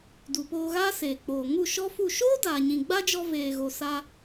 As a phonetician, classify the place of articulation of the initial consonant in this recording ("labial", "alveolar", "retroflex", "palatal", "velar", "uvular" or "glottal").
alveolar